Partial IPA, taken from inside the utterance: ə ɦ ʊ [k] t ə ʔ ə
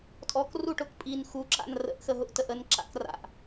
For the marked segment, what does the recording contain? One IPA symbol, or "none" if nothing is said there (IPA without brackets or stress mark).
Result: ʔ